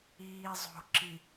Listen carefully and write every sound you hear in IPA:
iːzˤo̤ǁi

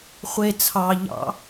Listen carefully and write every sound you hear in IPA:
χʷe t͡sʰɑʎɑ̰

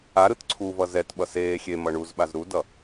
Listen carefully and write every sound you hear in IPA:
a ɾɯtǀʰuvʌ zɛtɓʌ seː xʲe mʌɳuzɓaz ɾudʌ

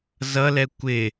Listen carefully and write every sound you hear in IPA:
zʌlɛ kʷɪ

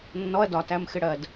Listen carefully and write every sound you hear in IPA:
nːɔɐ̯ dɒ tæmxɪɽɜd

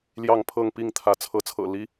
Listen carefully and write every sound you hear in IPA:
ljɑ˥˨ŋpʰɤ˥˨ŋ pi˥˨ŋt̪ʰä˨˦ t͡sʰɤ˨˦t͡sʰɤ̰˨˩ li˦

